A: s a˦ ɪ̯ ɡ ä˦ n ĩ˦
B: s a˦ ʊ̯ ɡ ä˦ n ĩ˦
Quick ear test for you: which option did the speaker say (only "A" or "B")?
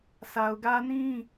B